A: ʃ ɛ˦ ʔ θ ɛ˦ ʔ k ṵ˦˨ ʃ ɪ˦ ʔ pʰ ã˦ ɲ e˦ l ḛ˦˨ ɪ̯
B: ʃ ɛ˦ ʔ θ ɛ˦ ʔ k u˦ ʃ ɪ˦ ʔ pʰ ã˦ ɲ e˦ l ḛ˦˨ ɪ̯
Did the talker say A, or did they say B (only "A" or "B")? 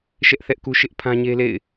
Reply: B